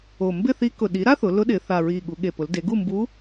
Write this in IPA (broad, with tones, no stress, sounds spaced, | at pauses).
o˨˩ m b ɪ˥˨ θ i˧˥ k ʊ˨˩ ɗ i˩˥ ɾ a˥ θ ʊ˩˧ l ʊ˧˥ ɗ ɪː˩˧ θ a˨˩ ɹ iː˨˩ ɠ u˩˧ ɠ e˨˩ p ʊ˩˧ l d e˩˧ ɡ u˥˨ m b uː˧˥